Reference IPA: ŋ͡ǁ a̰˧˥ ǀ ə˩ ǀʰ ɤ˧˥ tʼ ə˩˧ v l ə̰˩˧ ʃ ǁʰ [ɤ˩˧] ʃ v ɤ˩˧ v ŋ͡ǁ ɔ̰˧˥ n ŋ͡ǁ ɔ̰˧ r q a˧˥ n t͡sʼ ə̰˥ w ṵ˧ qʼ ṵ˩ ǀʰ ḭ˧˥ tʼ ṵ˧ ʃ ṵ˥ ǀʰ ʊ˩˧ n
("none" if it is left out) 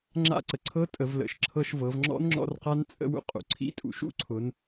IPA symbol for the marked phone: ɤ˧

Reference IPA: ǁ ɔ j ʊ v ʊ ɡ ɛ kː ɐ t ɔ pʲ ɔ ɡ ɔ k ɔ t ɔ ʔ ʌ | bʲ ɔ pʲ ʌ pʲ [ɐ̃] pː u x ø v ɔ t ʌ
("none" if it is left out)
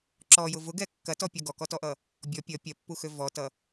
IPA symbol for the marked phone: ɐ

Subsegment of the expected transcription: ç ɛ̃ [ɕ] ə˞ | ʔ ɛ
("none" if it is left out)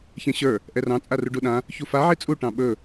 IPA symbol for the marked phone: ɕ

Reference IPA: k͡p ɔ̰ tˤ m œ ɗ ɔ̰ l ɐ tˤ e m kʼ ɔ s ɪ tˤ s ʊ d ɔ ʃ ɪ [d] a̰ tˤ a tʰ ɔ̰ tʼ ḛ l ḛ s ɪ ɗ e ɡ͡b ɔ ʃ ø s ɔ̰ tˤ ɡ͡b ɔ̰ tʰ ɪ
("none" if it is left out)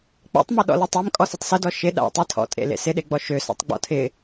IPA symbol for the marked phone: ɗ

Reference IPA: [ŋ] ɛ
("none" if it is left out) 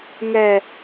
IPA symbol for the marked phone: ŋ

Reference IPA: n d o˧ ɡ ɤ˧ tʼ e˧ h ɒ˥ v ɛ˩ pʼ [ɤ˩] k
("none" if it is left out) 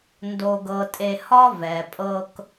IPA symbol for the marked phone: ɤ˧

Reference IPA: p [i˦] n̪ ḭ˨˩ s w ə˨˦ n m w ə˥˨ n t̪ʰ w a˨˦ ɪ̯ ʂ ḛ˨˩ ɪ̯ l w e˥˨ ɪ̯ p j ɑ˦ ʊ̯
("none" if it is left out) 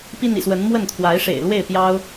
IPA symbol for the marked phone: i˦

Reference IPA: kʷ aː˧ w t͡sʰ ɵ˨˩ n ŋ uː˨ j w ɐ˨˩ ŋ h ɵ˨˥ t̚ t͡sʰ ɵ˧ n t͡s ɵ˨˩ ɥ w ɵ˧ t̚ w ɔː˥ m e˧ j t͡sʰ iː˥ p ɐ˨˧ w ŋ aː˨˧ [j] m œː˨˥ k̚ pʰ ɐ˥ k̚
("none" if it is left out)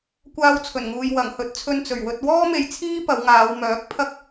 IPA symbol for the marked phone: w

